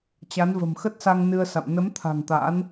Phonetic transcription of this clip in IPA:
t͡ɕ a˨˦ n v ə̤˨˩ m x ə˦˥ t̚ s a˧ ŋ n ɨ˧ ə̯ s a̰˧˨ m n ə˨˦ m t̪ʰ a̤˨˩ ŋ t̪ a̰˧˥ n

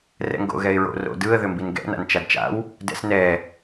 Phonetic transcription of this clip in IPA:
r ɛ̰ ŋ ɡ o̰ ɣ ɛ ɪ̯ ɹ o̰ r o̰ d ɯ ə̯ ð ʏ m b i n ɡ ɛ̰ n a̰ n t͡ʃ a d t͡ʃ a̰ w | d ɛ̰ s n ɛ

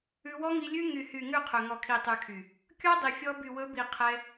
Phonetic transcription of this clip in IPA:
ʉ˧ w ɔ˦ ŋ i˧ lʲ ʉ˦ ŋ y˨ h y˨ ŋ ʉ˦˨ qʰ ɵ˨ ŋ ɔ˨ kʰ i˨ tˤ ʉ˨ kʰ y˨ | kʲ ɔ˦ dˤ i˨ fʲ ɔ˧ b y˨ w ɵ˨˦ b i˨ qʰ ɛ˧

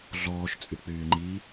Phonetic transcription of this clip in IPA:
ɮ ɔː ʃ t͡sʼ y k͡p yː ŋ͡ǃ i

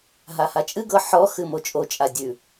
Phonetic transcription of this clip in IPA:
ɦ a h a t͡ʃʼ ɨ ɡ ɤ ħ ɔ x ɨ m o t͡ʃʼ o t͡ʃʼ a dʲ ʉ

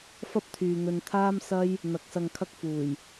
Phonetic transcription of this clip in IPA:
f ɐ˥ p̚ t̪ʰ yː˨ n̪ ɵ˧ n t̪ʰ aː˥ m s ɐ˥ j | n̪ ɐ˨˥ k̚ s ɐ˧ ŋ kʰ ɐ˥ k̚ f uː˨˩ j

